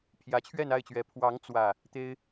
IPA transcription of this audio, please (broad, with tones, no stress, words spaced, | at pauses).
pʰjä˨˦t͡ɕʰɥɛ˥˨na˥˨ɪ̯t͡ɕɥɛ˨˦ pʰwɑ˨˦ŋ t͡swä˥˨ | t̪e˦ɪ̯